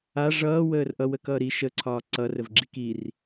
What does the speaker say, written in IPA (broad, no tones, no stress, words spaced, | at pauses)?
a ʐʌː wəːrʔʌ wəkʌːɾi ʃə ǀʰɒːǀʌ rəvɡ͡ǁikir